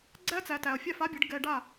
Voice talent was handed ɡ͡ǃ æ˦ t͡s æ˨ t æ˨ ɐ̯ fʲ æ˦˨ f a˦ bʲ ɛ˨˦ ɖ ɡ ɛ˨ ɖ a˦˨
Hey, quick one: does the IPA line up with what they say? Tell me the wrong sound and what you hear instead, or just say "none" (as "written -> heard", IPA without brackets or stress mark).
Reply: ɡ͡ǃ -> ɡ͡ǀ